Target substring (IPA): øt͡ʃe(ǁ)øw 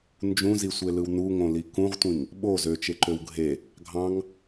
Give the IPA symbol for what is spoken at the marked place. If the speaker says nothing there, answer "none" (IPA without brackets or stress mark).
ǃ